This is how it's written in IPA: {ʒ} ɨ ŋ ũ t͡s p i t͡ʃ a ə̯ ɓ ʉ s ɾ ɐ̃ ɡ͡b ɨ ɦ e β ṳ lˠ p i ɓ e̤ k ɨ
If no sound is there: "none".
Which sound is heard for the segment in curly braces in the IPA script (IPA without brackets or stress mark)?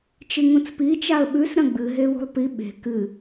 t͡ʃ